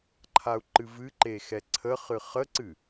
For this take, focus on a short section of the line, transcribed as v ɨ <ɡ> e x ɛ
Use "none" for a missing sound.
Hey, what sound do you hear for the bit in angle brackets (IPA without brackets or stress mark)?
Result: ǃ